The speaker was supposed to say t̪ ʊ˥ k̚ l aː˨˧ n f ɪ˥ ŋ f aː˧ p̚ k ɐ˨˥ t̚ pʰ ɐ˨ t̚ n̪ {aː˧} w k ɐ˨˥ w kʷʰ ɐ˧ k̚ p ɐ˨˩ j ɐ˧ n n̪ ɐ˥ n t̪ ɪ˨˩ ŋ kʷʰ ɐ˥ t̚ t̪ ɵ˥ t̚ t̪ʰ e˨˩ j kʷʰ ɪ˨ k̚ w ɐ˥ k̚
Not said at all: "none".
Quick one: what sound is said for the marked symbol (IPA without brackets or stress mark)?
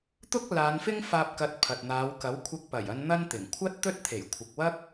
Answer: aː˨˧